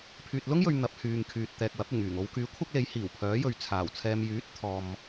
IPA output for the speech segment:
pʰyː˨t̚lʊ˥ŋjɵ˨ɥ n̪ɐ˨˥p̚hyː˨ŋkʰyː˨t̚t̪ɛː˨k̚ wɐ˨˥p̚ɪ˨˩ŋyː˨˩ŋ o˨˧wkyː˨˥ kʷʰɐ˥k̚le˨˥j hiː˨˩wpʰœː˨˥jɵ˨ɥ t͡sʰaː˨˩w t͡sʰɛː˨mjyː˨˥t̚t̪ʰɔː˨m

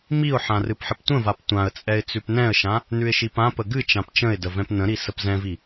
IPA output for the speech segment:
miʊ̯ħã rɨpħəptʷə̃vap tʷãə̯t͡sʼɛɪ̯ t͡sʉpnɛ̃ə̯ʃã | nʉɪ̯ʃipãpə ɡɨt͡ʃãp t͡ʃə̃ɪ̯də vɛ̃pnə̃ɾi səpzɛ̃vi

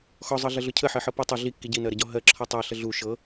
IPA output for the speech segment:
xɔzˤɤɮəɮʊ cʰəħɜħɤ pə tˤʊ ɮikːi ɟinɜɾəɟɔ ɦɜǁʰɔ tˤɜɬə ɮu ʃɤ

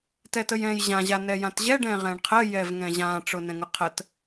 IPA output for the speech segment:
tɛtəjɛ̃jʑã ʑanɛjãtʑɛ ɖɛ̃ʁɛ̃ɳqʰə jɛvŋɛ̃ʑã ʈ͡ʂʊnɛ̃ŋʊqʰət

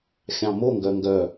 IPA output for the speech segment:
xʲɑ̃moŋɡœ ŋɡœ

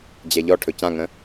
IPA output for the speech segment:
d͡ʑɛʎɔʈʰɵ cãŋə̃

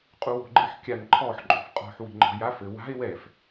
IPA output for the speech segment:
qʼuwo̤ɡ͡ǃɨħ kʲan ǃʰɔħǃʼo̤f qʼɔ̤ħwi̤ ŋ͡ǃɔ̤jaf ɘ wa̤e̯ wɛf

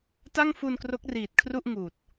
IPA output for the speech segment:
ta˥˩ŋfu˧nkro˦˥k̚ riː˨˩t̚ kʰru˥˩ʔ ŋuː˨˩t̚

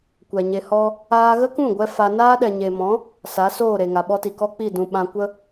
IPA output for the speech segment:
kʷɛ˨ɲe˧hɔ˦ | aː˧ɣə˦kũ˦˨ɡʷɛ˧ fa˧ naː˦ɗɛ˨ɲe˨mɔ̃˨˦ | sa˨˦soː˦˨ɾe˨ ŋa˨ɓɔ˦ti˨ kɔ˦k͡pi˦˨dũ˨ ɓã˧ kʷə˦

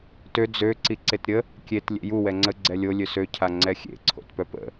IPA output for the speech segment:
tø d͡zø ǀiǀetɾʲə | kʲet lʲḛju wɛŋ͡ǀə ɡ͡ǀɛlʲo lʲøsø cʰaŋ͡ǀɛxʲḛ ǀʰo̰tpœpə̰

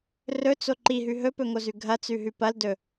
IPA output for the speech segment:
rɵt͡so ǃiɦʉ ɦɵpɵŋozʉ ɡʱɐt͡sʉɦʉ pɐldɵ

